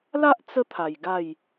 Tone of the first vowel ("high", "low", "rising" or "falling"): high